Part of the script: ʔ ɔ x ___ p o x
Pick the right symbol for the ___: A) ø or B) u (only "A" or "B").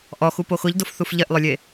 B